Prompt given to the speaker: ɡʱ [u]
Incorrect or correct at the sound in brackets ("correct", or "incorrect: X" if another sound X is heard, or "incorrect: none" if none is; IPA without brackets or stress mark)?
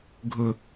incorrect: ʊ